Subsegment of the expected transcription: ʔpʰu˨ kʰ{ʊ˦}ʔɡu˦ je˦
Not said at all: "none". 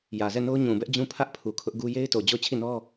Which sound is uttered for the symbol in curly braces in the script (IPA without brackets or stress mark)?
ʊ˦